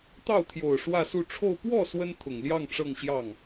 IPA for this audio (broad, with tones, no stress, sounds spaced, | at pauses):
t̪ ɑ˥˩ ʊ̯ t̪ʰ j o˨˩ ʊ̯ ʂ w ä˥˧ s u˥˧ ʈ͡ʂʰ o˥˧ ʊ̯ p w ɔ˥˩ s w ə˥ n t̪ʰ ʊ˨˩ ŋ l j ɑ˥˧ ŋ ʈ͡ʂ ɤ˥˧ ŋ ɕ j ɑ˥˩ ŋ